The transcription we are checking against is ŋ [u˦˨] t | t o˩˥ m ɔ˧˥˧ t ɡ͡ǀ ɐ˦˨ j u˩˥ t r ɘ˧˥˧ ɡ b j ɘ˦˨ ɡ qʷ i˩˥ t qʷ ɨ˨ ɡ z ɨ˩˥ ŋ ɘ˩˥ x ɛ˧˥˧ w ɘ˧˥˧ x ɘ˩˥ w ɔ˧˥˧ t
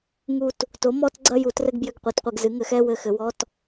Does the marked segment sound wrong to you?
no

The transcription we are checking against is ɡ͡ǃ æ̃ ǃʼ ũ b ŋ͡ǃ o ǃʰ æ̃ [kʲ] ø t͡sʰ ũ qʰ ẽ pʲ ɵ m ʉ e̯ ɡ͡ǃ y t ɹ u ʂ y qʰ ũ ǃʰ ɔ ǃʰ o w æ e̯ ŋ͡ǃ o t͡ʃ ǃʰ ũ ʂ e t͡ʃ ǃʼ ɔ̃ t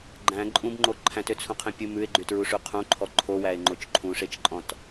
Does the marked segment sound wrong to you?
yes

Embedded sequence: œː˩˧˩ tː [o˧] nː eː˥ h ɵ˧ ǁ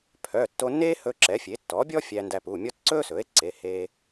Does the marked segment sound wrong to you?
no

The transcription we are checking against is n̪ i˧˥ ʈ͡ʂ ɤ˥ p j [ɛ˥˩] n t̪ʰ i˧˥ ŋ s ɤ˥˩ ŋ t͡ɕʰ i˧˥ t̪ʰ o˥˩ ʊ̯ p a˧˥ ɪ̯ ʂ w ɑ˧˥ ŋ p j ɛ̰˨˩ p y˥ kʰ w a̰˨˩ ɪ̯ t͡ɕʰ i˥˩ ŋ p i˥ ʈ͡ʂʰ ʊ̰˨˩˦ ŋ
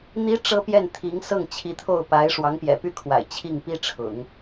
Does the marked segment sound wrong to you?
no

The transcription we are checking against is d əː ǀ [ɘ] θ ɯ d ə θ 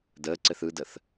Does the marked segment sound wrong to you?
no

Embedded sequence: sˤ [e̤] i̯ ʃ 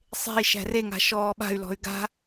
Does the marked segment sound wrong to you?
no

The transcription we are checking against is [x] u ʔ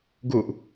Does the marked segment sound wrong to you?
yes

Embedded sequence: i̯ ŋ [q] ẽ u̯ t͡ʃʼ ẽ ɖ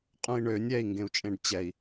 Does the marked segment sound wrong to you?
yes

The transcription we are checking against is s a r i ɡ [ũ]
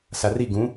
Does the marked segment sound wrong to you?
no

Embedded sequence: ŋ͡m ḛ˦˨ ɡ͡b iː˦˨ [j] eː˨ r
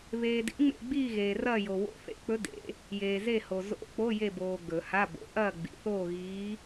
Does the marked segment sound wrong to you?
yes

